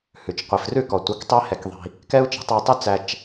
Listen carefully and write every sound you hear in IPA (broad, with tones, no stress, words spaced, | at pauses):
hʉ˨t͡ʃ qʷi˨frʉ˦˨kɔ˨ tʷœ˨˦ktˤe˦ hɛ˦kðˤi̤˦ | kɛ˦u̯t͡ʃi̤˨˦ tˤæ˧tˤy˦t͡sæ˧t͡ʃ